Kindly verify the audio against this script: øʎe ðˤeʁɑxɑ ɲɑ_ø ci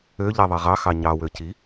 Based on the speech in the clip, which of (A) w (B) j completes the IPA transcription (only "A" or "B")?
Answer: A